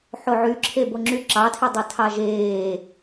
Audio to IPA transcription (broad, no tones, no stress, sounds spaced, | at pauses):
ħ o ʕ y ǁʰ e b o ŋ͡ǁ y ǁ ɑ tʰ i dˤ e tʰ ɑ ʒ eː